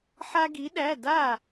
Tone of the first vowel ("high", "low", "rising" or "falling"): high